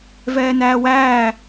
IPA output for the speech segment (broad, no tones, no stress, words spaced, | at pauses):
vɛːnæːwæː